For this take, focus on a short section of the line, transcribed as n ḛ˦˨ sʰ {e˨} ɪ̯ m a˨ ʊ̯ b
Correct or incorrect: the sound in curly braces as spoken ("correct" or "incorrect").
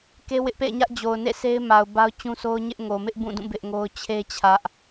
incorrect